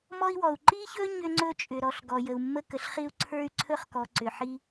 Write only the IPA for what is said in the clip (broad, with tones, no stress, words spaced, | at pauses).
mɔ˥i̯wɔ˩u̯ ǃi˥çɵ˥ ɲʏ˥ŋ͡ǀɵ˥t͡ʃʼʏ˩ ɾɔ˩ɬɡɔ˩ jə˩u̯mːə˥kə˩ɬχi˥u̯ ǀʰə˞˥y̯ǀʰɵ˥χkɔ˩ ǀʏ˩ħi˥